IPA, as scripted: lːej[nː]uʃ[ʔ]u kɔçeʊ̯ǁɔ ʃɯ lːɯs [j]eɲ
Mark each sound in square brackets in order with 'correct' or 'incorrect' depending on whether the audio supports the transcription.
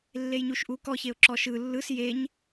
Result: incorrect: ɲ, correct, correct

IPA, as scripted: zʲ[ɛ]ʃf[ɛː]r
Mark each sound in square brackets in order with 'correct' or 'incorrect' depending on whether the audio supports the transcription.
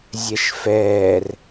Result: correct, correct

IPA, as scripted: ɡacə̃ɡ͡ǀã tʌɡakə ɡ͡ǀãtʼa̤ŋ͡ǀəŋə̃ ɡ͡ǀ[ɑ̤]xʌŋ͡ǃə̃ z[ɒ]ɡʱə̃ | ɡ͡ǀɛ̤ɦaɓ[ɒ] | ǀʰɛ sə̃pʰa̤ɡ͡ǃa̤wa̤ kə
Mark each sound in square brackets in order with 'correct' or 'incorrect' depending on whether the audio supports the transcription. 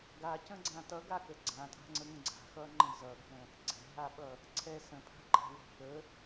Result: incorrect: a̤, incorrect: ʌ, incorrect: ʌ

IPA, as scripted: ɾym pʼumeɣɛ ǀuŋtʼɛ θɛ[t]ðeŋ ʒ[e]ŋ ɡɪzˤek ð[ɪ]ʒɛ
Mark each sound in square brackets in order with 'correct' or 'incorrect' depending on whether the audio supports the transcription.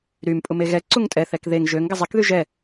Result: incorrect: k, incorrect: ø, incorrect: y

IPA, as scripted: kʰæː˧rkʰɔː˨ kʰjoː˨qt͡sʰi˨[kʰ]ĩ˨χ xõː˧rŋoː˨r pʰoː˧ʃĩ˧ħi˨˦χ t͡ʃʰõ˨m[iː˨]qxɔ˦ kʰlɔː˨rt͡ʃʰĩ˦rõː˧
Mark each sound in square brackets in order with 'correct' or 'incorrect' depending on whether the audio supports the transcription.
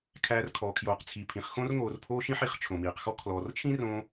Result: incorrect: pʰ, correct

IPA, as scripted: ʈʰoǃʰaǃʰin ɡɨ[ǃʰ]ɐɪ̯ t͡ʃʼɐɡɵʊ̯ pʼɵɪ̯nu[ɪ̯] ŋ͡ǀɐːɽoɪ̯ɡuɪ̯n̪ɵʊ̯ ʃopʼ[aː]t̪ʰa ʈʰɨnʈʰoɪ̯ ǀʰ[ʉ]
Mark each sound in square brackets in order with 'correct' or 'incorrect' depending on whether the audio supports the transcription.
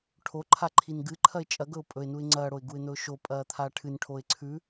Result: correct, correct, incorrect: ɐː, correct

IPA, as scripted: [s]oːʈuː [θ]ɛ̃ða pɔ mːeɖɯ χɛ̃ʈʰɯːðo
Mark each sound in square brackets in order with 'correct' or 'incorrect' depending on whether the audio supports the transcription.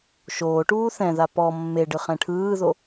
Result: incorrect: ʃ, correct

